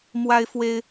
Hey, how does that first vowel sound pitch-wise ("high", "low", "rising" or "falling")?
high